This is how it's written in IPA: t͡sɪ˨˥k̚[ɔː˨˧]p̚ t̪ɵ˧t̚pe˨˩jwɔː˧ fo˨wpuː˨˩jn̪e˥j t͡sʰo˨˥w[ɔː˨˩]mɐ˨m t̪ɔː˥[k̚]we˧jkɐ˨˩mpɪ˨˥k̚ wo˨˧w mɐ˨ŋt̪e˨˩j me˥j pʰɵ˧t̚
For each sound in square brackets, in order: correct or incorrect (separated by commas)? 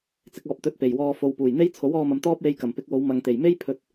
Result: incorrect, incorrect, incorrect